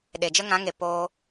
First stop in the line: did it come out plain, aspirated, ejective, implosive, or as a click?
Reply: implosive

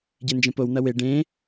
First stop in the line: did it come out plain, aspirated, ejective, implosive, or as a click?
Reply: plain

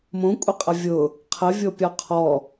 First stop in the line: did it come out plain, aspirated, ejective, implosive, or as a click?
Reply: ejective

